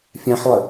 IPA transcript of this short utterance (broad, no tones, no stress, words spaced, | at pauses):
fʲãħlˠə